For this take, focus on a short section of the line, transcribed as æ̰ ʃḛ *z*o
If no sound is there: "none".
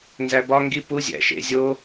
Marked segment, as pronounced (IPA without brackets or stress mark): zʲ